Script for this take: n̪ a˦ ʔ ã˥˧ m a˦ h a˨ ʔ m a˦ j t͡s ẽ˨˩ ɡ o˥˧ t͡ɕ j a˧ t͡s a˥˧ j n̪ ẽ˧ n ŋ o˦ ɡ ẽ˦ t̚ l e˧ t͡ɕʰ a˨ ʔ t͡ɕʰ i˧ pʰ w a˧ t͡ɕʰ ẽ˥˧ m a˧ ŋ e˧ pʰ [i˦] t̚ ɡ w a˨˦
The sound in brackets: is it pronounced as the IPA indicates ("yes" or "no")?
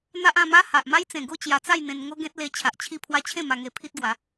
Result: yes